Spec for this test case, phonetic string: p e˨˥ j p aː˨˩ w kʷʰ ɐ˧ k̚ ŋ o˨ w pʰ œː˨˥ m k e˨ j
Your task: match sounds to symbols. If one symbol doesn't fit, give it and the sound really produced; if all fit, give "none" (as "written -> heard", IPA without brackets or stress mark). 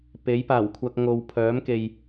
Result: none